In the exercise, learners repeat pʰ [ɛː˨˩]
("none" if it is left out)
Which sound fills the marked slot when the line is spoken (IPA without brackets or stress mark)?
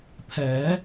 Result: ɛː˩˦